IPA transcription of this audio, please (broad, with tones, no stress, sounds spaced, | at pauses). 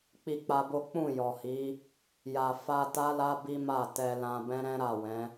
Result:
k͡p i˧ k͡p a˧ b o˦ k͡p ũ˦˨ j ɔ˨ h i˨˦ | j a˨ f a˧ t a˦ l a˦ b i˦ m a˦˨ t ɛ˧ l ã˧ b ɛ̃˦ ɾ ɛ̃˦ ɾ a˦˨ w ɛ̃˨˦